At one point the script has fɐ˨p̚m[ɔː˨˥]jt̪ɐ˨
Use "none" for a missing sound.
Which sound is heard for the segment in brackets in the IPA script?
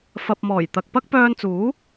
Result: ɔː˨˩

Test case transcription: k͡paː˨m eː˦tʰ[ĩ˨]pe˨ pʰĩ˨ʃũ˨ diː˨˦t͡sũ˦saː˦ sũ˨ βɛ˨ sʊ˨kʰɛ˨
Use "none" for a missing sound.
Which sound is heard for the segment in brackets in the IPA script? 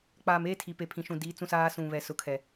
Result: i˨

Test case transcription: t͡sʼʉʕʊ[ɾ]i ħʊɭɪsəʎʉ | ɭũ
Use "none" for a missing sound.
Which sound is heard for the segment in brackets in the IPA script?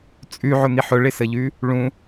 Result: n̪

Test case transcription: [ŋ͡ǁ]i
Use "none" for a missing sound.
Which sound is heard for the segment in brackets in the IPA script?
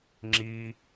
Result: ŋ͡ǁ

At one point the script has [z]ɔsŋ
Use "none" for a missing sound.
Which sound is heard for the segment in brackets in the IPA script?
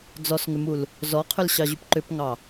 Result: d͡z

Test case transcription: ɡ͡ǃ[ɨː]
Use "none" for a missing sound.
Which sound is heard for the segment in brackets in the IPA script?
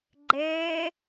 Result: ɛː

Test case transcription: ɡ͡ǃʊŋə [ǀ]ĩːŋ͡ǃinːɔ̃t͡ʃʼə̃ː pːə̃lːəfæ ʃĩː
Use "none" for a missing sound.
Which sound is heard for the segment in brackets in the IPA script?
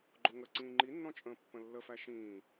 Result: ǀ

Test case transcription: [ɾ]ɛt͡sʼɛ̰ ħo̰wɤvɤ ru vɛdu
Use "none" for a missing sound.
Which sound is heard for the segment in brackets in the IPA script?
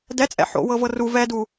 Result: d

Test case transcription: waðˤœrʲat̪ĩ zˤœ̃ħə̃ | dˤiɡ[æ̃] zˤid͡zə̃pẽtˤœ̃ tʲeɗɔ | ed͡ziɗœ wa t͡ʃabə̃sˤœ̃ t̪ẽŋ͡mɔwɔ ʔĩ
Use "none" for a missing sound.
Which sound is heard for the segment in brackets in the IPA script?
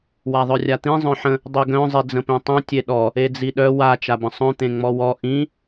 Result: œ̃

